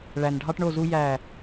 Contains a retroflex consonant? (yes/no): yes